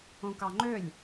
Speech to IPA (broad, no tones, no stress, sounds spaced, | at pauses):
õ k ɑ ŋ͡ǃ ø lʲ